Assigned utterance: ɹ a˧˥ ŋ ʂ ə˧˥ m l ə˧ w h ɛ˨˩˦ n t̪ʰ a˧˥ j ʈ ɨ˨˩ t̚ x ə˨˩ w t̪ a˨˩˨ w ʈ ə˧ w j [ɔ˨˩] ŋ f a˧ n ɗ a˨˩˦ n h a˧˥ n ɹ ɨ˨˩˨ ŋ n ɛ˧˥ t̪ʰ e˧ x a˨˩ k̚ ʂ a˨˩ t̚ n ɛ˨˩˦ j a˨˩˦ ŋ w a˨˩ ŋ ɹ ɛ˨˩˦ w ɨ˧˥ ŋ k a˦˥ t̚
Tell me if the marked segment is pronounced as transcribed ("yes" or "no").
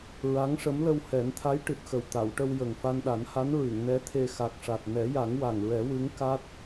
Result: no